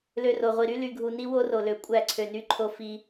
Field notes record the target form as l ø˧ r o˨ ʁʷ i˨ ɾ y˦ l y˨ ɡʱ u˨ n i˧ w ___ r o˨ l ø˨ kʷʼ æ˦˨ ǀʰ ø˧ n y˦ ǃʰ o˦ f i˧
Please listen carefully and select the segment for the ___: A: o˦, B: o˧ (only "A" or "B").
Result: A